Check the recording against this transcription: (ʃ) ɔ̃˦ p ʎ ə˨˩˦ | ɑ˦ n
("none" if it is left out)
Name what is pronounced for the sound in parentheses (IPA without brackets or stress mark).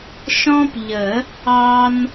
ʃ